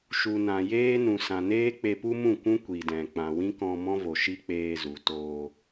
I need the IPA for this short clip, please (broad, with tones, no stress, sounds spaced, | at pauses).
ʃ u˨ n ã˨ j eː˦ n ũ˨ s ã˨ n eː˦ k͡p e˧ p u˦ m ũ˦˨ kʷ ũ˦ kʷ i˨ d ɛ̃˨ k͡p ã˨ w ĩ˦ k ɔ̃˧ m ɔ̃˦ v o˨ ʃ i˦ k͡p eː˧ z u˨ t oː˧